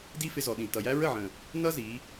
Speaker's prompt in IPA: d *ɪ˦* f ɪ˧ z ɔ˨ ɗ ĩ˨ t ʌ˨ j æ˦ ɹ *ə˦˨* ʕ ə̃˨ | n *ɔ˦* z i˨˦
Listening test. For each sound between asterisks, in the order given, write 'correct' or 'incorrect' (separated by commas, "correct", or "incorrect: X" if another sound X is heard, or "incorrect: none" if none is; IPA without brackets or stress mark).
incorrect: i˦, correct, incorrect: ʌ˦